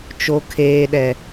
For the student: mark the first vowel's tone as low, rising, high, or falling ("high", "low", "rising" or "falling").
low